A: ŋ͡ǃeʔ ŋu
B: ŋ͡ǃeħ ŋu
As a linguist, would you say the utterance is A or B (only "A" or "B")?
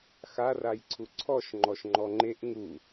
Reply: A